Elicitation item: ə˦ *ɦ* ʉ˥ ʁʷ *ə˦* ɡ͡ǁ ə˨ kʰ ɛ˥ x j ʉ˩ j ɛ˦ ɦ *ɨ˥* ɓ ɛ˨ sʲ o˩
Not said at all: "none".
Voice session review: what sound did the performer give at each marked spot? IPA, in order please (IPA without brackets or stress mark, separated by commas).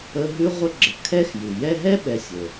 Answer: ɦ, ə˦, ɛ˥